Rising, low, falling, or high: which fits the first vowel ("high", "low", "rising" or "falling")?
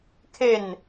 falling